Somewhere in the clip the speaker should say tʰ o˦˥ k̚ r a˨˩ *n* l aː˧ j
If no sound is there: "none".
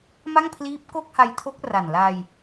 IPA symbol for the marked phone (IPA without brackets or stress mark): n